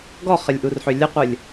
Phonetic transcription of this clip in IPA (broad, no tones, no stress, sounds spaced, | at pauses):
ɡ ɔ χ ə lʲ ʔ u r ħ ø lʲ ə qʷ ə lʲ